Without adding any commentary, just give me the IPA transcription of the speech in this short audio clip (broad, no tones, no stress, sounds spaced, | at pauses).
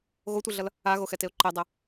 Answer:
ɣ o tʷ ɛ ɮ ʌ l | a ɣ o x ɛ t e ʊ̯ ǃ e dˤ ɛ